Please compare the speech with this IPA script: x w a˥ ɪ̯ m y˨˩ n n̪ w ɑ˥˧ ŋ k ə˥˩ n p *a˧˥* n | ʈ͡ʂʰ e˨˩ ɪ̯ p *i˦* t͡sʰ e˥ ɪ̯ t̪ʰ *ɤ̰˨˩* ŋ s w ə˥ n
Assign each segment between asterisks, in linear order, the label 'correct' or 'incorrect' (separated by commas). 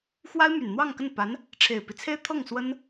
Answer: correct, correct, incorrect